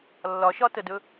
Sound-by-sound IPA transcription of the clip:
lː ɒ ʃ ɒ t ə d ɵ

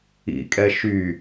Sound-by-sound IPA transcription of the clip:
ḭ kʼ ɛ ʃ y

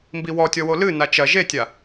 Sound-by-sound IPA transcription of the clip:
m b i w ɔ tʲ ɔ w o l ɨ n a t͡ʃ ɐ ʒ e tʲ a

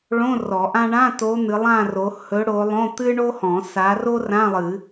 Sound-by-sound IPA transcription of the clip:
ɭ õ˧˥˧ r ɔ˨˩˦ ʔ ã˥ ɳ ã˧˥˧ t o˨˦ n̪ ɨ˨˦ lˠ ã˥˧ r o˨˦ h ɵ˨˦ ɽ o˨˦ lˠ õ˧˥˧ t̪ ɨ˥ ɳ o˥ h ɔ̃˨˩˦ s a˨˦ r o˥ r ã˧˥˧ lˠ ɨ˨˩˦

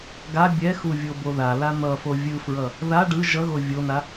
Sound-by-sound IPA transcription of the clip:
ɡ a bʲ ɛ x u vʲ o b o ð a l a n̪ ʌ f o vʲ ɯ f ɹ ʌ | ð a ɖ ɯ ʒ ʌ ɣ o vʲ o n a

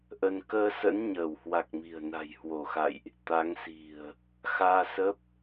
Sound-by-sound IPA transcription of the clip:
ʔ ə˧ n k əː˧ s ə̰˧˥ n ɲ əː˧˩ w h w a˨˩ k̚ m i̤˨˩ ə̯ n a̤˨˩ j h w o˧˩ x a̰˧˨ j ʔ | t̪ a˨˦ ŋ s i̤˨˩ ə̯ | x aː˧ s ə˦˥ p̚

